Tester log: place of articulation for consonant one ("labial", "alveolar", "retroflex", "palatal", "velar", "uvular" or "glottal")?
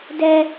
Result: alveolar